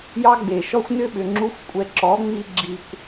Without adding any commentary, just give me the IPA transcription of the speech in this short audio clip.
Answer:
j ɑ˦ ɡ͡b e˨ ʃ ɔ˦ xʷ n ʏ˦ ɓ ʏ˨ ŋ͡ǁ u˧ xʷ kʷʼ ɛ˨ ǁ ɔ˨˦ ŋ͡m i˧ ɡ͡ǁ i˨ kʷ

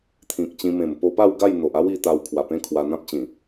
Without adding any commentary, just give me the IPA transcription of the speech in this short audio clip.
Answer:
t̪ʰ ĩ˨ k̚ t͡ɕ ĩ˧ m ẽ˨˩ m p o˧ p a˥˧ w ɡ a˥˧ j n̪ o˨ ʔ a˦ w i˥˧ t̪ a˧ w kʰ w a˨˩ p ẽ˦ kʰ w a˧ n̪ ã˦ p̚ t͡ɕ ĩ˨˩

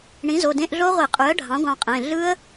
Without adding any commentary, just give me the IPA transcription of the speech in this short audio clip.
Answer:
ɳ ĩ˩˥ z o˩˧˩ d ẽ˧˥˧ ʔ ɮ o˦˥ ʁʷ i˧˩˧ qʼ y˩˥ ə̯ ɖʱ ɑ̃˩˥ ɡʷ ɑ̃˧ qʼ ẽ˩˧˩ ɮ ɯ˦˥ ə̯

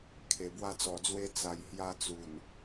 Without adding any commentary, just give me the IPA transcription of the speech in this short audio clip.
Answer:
kʰ e˨˩ b w a˥˧ t͡s ɔ˨˩ d͡z w e˦ t͡s a˨˩ j h j a˧ t͡s u˨˩ n

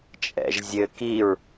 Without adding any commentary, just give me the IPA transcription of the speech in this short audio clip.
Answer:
t͡ʃʼ ɛ̰ ʒ zʲ ɘ k i ɹ

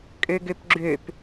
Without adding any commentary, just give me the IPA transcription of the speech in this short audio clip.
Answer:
kʼ ø ɡ ø p ɡ͡ǁ ø p

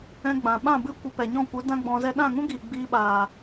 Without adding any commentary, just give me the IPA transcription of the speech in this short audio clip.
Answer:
ɛ̃˧ ɡ͡b ã˨ ɓ ã˦˨ b ɨ˦ kʷ ə˧ p ɛ˨ ɲ ɔ̃˦˨ kʷ ɨ˨˦ d ã˦ ɡ͡b ɔ̃˧ z ɛ˦ ɗ ã˦˨ ŋ ũ˦ ɡ iː˨ ɡ͡b iː˧ ɓ aː˨

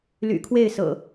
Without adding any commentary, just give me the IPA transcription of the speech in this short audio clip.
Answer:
l y̰˨˩ kʰ w e˥˨ ɪ̯ s ɤ̰˨˩

